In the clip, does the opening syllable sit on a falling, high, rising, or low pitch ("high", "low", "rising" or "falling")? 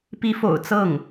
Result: rising